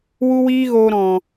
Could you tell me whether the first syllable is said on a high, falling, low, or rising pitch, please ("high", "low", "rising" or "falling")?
high